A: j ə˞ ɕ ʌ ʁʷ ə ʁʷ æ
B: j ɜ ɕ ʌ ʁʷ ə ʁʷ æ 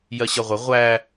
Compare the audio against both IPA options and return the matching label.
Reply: B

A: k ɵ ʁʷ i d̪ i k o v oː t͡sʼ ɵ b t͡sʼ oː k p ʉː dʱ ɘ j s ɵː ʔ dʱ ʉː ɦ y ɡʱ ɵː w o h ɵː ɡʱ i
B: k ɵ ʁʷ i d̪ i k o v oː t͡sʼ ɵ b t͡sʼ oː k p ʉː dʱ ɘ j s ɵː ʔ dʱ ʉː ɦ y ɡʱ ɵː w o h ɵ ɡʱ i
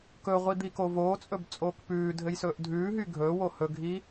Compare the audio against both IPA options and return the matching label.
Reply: B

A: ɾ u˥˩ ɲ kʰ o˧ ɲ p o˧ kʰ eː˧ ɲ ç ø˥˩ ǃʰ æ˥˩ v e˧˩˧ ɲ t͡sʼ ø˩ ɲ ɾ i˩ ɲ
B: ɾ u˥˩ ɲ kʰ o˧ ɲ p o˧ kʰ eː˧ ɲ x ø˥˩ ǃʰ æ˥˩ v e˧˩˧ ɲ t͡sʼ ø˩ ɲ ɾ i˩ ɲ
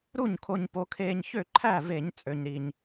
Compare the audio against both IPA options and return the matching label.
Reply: A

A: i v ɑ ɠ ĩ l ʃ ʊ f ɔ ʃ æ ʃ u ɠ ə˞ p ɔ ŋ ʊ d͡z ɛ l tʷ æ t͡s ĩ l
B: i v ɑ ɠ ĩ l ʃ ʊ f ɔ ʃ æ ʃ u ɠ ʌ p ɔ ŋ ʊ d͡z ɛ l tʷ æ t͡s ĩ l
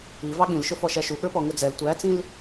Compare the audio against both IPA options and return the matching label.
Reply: A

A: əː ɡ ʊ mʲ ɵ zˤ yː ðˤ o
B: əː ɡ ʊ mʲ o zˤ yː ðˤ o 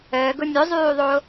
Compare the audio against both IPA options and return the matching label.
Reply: A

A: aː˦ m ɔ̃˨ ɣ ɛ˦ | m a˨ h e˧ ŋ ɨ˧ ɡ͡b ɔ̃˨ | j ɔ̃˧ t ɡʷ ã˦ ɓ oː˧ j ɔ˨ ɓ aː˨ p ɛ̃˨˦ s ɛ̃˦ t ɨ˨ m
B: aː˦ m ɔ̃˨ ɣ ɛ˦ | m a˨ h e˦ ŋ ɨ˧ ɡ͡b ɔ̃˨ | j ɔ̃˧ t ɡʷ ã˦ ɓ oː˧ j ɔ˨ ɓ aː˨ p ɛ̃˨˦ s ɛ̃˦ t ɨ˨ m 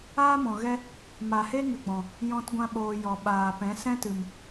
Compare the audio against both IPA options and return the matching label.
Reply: B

